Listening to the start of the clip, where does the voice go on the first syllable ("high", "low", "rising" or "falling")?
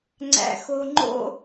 low